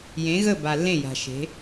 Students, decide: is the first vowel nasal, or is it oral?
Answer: nasal